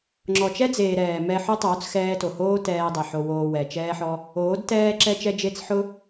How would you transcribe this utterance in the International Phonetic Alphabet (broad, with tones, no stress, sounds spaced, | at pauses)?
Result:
ŋ͡ǁ ɔ˨ t͡ʃ ɛ˦ d͡z eː˨ ɾ ɛː˨ m ɛ˧ ħ ʊ˦ tˤ oː˨˦ t͡s x ɛː˧ t o˨ h oː˦ t ɛː˧ dˤ ɛ˨ ħ o˧ w oː˧ w ɛ˨ t͡ʃ ɛː˦ ħ ɔ˦ | oː˨˦ d t ɛː˦ ǁ ɛ˧ t͡ʃ ɛ˧ d͡ʒ e˧ t͡s ħ ʊ˦